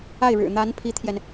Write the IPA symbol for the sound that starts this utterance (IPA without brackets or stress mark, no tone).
a